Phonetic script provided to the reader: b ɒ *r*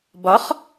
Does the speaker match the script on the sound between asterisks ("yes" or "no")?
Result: no